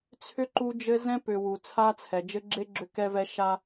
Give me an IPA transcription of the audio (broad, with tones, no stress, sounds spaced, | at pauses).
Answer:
t͡sʰ ʏ˦ ǃ u˦ d͡ʒ ɘ˦ z ɛ̃˦ p ʏ˨ w u˨ t͡sʰ a˦ t͡sʰ ɛ˨ d͡ʒ ɘ˦ ɡ͡ǁ e˦ ɡ͡ǁ ʏ˦ k ɛ˦ v ɛ˦ ʃ a˦